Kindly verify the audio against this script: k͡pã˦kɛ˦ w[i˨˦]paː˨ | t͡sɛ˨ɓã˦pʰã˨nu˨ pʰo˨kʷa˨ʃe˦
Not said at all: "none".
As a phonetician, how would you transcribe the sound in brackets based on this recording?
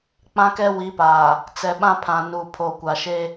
i˨˦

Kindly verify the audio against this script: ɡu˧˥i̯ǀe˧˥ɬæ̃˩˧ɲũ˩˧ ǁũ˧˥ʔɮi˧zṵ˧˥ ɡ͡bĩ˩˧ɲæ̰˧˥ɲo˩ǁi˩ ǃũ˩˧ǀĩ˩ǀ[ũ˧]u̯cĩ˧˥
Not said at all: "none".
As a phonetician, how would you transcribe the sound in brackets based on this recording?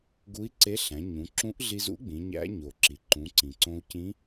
õ˧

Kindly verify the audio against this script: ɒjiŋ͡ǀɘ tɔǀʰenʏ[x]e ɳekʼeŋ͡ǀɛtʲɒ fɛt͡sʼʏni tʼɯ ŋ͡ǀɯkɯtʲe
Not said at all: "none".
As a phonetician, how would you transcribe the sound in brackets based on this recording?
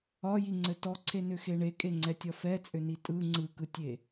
x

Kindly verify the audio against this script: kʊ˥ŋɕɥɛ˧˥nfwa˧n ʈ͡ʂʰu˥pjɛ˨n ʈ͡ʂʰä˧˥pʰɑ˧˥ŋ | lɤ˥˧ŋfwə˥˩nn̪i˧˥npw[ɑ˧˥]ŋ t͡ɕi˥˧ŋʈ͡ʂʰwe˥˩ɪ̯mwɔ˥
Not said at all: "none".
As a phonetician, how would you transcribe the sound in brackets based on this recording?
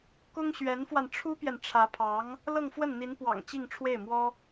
ɑ̰˨˩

